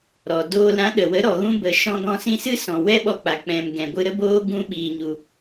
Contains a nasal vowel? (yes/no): yes